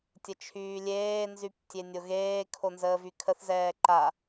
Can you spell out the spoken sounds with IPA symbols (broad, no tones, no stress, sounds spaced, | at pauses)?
tʲ ə t͡ʃʰ yː lʲ eː n z y p tʲ e nʲ o ɣ eː kʰ o n z əː v y kʰ ə θ z ɛː ǃ a